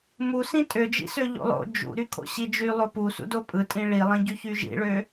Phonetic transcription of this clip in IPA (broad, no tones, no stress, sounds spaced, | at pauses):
m u s ĩ tʼ ø d͡ʒ ḭ s ø ʎ o̰ lˠ o̰ d͡ʒ ṵ ɾ y kʰ o̰ ɕ i d͡ʒ y lˠ o p u s ṵ d o pʼ ɯ tʼ ĩ ɭ i lˠ ĩ ɟ y ç y ʒ ḭ ɭ ø